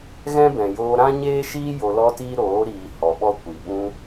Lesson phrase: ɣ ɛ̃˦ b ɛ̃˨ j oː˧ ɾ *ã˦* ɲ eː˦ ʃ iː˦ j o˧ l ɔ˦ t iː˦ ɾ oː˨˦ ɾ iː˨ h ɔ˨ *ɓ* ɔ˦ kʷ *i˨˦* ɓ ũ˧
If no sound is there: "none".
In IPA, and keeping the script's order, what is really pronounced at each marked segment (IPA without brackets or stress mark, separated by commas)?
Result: ã˦, ɓ, i˨